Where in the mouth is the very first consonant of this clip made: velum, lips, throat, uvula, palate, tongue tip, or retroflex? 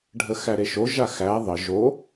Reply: retroflex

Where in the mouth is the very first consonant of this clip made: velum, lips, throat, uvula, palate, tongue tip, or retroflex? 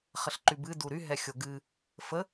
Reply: uvula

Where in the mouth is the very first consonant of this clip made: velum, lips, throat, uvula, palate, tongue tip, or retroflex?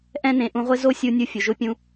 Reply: throat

